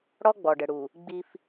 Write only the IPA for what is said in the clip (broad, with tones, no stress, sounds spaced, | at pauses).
ɽ ɔ˦ ɡ͡b ɔ˨ ɖ ə˨ ɽ u˨ | ɡ͡b i˦ f